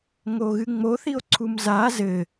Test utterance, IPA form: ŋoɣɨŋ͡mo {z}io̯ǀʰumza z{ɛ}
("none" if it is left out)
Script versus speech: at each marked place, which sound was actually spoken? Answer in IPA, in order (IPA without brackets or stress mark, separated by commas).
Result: θ, ɘ